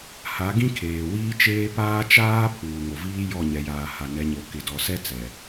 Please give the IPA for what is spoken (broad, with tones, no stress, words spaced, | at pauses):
ha˨˦ɡĩ˦kʰeː˨ wiː˦t͡ʃeː˦ paː˦t͡ʃaː˦ pʰuː˨ŋo˨viː˦ jɔ˦˨ɲɛ˨jaː˨ ha˨nɛ˨˦ɲo˨ kɪ˨dɔ˨sɛ˦t͡sɛ˨